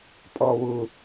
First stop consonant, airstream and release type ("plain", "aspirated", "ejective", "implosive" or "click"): ejective